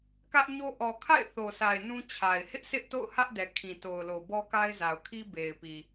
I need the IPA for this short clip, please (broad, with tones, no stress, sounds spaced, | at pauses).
k ä˦ ʔ ɲ o˦ ʔ ɔ˨ kʰ a̰˦˨ ɪ̯ θ o˨ sʰ a˨ ɪ̯ n ũ˦ t͡ɕʰ a˨ ɪ̯ h ɪ˦ ʔ s ɪ˦ ʔ t o̰˦˨ ʊ̯ h ä˦ ʔ d ɛ˨ kʰ ĩ˨ t o˨ ʊ̯ l o˨ b ɔ˦ k a˦ ɪ̯ z a˨ ʊ̯ kʰ i˦ b e˨ ɪ̯ p i˨